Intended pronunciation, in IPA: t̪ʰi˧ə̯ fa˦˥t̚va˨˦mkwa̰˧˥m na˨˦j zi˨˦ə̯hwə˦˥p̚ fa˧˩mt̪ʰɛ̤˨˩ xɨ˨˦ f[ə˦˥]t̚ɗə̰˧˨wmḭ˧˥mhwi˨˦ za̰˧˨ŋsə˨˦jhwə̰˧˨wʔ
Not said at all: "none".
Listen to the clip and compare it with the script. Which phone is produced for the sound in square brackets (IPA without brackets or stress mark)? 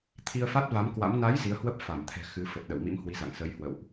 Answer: ə˨˩